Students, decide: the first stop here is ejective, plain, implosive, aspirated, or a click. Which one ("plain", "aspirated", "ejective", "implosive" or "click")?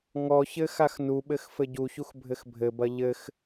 implosive